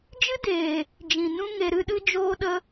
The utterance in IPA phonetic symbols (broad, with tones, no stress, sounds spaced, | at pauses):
d͡ʒ ɨ˦ d eː˨ | d͡ʒ ĩ˨ n ũ˧ ŋ e˨ ɾ ɨ˧ ɗ ɨ˧ d͡ʒ oː˧ ɗ ə˧